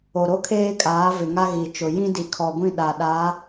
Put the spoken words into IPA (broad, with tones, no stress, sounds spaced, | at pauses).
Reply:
o˨ ɾ o˦ kʰ eː˦ kʼ aː˨˦ v ɪ˨ ŋ a˦ ɣ i˨ t͡ʃ ʊ˨ j ĩ˦ d i˨ kʰ ɔ˨ ɡʷ ĩ˦˨ ɗ a˨ ɗ a˨˦